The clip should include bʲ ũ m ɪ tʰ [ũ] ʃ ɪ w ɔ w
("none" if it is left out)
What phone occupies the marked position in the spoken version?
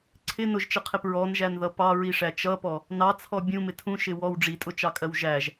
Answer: ũ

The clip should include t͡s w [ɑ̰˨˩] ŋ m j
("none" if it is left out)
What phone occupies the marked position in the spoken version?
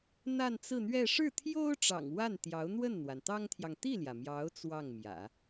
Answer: ɑ˥˩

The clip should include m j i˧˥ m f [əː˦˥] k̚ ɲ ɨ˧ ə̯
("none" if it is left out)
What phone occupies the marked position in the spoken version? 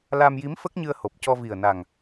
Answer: ə˦˥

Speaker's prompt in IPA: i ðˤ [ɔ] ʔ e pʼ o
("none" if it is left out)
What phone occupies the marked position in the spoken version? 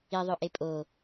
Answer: ɵ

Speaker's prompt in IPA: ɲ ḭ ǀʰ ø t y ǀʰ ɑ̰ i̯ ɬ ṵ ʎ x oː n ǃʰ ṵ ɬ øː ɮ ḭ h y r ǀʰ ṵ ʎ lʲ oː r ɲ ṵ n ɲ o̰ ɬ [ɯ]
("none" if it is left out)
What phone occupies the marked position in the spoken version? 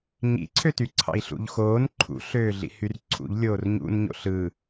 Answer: ɯ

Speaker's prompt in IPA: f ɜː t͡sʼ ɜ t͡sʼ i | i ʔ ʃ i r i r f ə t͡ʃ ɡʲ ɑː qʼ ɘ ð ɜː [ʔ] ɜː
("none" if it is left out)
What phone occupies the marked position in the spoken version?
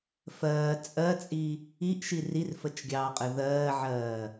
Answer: ʕ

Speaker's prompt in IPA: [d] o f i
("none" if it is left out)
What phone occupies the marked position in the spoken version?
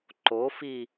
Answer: ǃ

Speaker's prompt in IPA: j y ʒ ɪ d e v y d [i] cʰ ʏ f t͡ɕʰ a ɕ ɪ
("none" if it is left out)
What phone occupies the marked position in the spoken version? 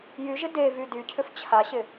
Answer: y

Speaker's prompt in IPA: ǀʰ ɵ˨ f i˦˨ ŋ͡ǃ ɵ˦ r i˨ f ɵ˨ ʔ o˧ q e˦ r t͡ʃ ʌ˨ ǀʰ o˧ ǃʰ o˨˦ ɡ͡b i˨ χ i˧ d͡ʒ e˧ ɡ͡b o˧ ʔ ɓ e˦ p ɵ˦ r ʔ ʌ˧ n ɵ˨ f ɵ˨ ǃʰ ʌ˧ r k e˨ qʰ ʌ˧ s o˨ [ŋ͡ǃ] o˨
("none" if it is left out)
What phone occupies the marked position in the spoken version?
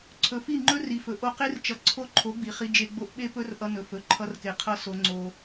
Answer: ŋ͡ǀ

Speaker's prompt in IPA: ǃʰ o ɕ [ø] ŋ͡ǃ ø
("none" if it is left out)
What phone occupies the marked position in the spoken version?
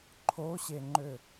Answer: e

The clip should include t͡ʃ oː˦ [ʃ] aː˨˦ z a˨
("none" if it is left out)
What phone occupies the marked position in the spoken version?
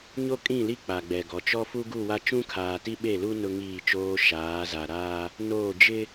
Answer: ʃ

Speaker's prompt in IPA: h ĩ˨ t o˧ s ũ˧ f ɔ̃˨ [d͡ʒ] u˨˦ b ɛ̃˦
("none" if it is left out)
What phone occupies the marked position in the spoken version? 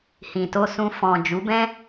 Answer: d͡ʒ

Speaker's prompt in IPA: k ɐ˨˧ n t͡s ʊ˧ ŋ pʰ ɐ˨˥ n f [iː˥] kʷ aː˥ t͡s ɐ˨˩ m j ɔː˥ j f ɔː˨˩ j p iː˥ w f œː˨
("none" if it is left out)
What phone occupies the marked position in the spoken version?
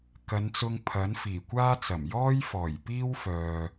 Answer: iː˨˩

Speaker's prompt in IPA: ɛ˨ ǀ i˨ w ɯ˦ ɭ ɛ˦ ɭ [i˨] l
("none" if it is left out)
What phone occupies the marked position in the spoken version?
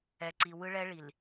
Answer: i˨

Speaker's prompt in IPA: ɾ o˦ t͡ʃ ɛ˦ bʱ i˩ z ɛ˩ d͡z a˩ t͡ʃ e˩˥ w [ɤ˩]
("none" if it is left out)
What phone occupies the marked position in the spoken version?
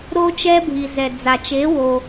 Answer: o˩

